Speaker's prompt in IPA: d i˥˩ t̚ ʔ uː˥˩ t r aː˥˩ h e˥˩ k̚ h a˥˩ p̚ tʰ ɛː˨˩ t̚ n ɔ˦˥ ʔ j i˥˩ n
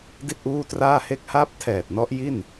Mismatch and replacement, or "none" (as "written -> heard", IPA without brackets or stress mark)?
none